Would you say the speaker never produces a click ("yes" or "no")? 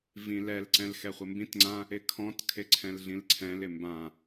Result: no